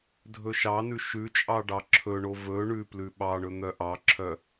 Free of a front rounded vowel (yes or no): no